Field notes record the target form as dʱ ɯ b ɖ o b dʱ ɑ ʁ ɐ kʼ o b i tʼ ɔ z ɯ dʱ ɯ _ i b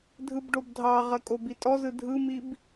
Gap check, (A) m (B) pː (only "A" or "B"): A